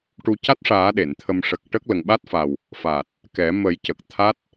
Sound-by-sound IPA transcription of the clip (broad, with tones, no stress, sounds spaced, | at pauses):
ʈ u˧ c a˦˥ t̚ ʂ aː˨˩˦ ɗ e˨˩˨ n t̪ʰ ə˧ m ʂ ə˨˩ k̚ ʈ ə˦˥ k̚ l ə˨˩ ŋ ɓ a˦˥ t̚ f a˨˩ w | f a˨˩ t̚ | k ɛ˨˩˦ m ə˨˩˦ j c ə˨˩ k̚ t̪ʰ a˦˥ t̚